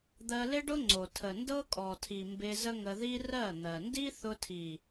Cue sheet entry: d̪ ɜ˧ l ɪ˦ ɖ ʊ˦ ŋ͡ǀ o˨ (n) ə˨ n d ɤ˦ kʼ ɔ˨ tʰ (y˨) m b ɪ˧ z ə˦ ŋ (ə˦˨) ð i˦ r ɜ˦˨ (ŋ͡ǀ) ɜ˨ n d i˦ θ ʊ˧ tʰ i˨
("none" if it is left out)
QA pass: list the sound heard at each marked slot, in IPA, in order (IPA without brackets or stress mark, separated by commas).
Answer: tʰ, i˨, ə˧, n̪